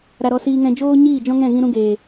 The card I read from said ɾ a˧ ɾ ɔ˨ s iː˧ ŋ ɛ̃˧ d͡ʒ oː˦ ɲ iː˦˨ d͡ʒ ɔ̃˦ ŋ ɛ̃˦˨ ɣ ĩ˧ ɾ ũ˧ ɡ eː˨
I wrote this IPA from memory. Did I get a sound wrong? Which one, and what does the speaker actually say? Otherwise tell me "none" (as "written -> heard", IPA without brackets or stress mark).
ɔ˨ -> ɔ˧